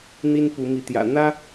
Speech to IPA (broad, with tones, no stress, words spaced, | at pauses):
n̪i˥n pu˧˥mi˧˥t̪jä̰˨˩ n̪ä˥